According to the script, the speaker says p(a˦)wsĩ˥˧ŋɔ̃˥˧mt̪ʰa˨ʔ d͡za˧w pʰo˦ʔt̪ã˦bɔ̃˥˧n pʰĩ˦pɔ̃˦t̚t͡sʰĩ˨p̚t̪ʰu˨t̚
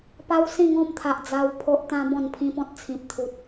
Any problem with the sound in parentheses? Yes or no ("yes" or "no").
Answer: no